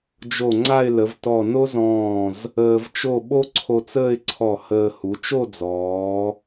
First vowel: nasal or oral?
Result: oral